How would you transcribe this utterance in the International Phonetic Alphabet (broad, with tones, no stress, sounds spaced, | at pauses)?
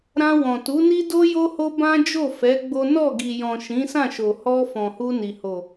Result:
ɾ ã˧ w ɔ̃˨ t u˨˦ n i˦ d o˦ j o˦ h o˦ b ã˦ d͡ʒ o˦˨ f ɛ˨˦ ɡ͡b o˦ n ɔ˦˨ ɡ i˨ j ɔ̃˨ ʃ ĩ˨˦ s ã˦˨ ʃ o˨ h ɔ˧ f ɔ̃˨ h u˧ n i˨ h o˨